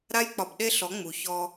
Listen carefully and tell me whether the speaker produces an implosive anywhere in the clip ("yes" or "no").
yes